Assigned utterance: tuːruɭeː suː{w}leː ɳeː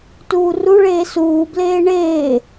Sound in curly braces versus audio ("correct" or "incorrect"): incorrect